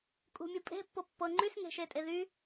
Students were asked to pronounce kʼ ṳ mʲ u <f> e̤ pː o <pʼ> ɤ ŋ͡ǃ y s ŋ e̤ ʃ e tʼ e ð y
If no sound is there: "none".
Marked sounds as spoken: pʼ, pː

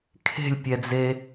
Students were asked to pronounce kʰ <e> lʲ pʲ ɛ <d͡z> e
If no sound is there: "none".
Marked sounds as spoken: e̤, d͡z

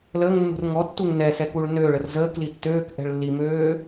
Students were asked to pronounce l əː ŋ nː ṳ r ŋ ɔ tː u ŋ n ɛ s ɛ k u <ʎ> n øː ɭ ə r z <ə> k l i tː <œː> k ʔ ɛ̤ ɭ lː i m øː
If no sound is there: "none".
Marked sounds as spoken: ɭ, əː, øː

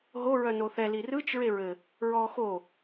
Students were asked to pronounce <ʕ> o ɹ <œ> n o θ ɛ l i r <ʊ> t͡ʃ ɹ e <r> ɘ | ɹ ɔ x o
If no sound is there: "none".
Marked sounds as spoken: ɦ, œ, ɯ, ɹ

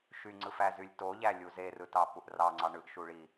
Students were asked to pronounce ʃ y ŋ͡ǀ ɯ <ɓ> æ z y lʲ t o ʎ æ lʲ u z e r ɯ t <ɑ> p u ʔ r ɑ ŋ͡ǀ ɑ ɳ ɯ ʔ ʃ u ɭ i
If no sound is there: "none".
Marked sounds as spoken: f, ɑ

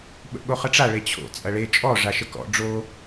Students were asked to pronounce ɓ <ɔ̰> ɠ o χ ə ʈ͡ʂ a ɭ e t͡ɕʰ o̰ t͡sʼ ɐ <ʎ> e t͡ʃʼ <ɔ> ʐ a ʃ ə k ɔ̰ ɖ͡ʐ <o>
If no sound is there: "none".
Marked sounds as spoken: ə̰, ɭ, ɔ, o

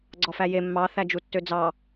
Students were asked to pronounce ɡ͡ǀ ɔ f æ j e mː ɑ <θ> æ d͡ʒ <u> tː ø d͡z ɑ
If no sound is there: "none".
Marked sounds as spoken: θ, u

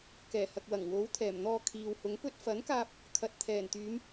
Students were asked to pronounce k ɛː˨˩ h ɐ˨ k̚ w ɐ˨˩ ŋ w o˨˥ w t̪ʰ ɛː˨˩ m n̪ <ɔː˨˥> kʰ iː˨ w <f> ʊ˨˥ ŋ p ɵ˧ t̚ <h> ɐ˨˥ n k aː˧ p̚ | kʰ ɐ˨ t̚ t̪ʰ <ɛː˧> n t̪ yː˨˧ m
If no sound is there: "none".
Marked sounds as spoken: ɔː˧, h, f, ɛː˨˩

